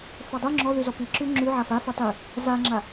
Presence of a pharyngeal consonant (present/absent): present